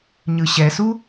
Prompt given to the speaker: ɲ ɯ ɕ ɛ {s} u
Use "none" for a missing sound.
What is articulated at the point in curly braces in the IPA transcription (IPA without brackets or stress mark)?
s